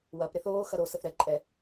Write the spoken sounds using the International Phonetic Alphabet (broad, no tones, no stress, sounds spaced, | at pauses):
w ɐ p ɾ ɪ θ oː x ɐ ɾ o s ə θ ɾ ɛ ǃʼ ɛ